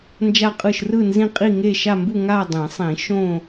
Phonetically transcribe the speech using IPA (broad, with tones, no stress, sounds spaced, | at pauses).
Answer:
n d͡ʒ a˥˧ qʼ ɯ˥˧ ʃ r ɯ˥˧ n z ĩ˥˧ qʼ i˥˧ ŋ e˥˧ ʃ a˥˧ m b u˥˧ ŋ a˥˧ dˤ ĩ˨˩˦ sˤ ĩ˨˩˦ ʃ õ˥˧